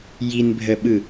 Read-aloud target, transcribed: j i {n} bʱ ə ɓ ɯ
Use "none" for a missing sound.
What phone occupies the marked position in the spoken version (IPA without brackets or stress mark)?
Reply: n